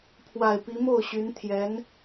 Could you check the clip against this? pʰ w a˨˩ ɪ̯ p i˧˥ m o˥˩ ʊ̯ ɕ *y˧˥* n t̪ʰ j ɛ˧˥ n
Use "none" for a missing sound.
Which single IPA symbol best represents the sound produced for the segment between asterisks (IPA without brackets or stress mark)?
y˧˥